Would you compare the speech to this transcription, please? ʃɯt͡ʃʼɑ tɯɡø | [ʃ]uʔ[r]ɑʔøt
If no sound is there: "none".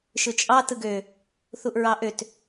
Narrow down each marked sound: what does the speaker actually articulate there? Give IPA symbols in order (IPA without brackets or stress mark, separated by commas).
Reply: θ, ɹ